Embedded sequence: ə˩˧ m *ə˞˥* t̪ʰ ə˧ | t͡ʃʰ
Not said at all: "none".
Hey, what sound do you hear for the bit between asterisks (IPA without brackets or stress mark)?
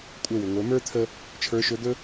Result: ə˞˥